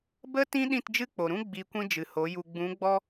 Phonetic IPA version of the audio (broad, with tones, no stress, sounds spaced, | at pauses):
b ə˧ t ĩ˧ ɗ ĩ˦˨ t d͡ʒ ɨ˦ k͡p o˨ ɾ ũ˦ ɡ͡b i˧ kʷ ĩ˦ d͡ʒ ɨ˨ h o˨˦ j u˧ ɡ͡b ũ˨˦ ɡ͡b ɔ˦